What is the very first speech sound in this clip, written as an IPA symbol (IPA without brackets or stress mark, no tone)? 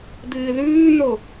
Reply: d̪